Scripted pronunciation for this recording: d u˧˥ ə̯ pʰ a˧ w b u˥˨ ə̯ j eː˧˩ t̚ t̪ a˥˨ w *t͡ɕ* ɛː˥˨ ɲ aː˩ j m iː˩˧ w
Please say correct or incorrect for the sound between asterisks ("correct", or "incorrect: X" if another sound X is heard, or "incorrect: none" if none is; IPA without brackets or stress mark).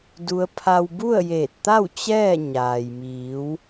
correct